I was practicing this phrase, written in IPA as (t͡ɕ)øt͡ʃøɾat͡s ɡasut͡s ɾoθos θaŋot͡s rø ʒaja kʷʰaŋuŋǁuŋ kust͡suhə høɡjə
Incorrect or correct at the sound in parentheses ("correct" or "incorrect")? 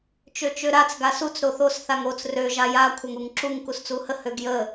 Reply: incorrect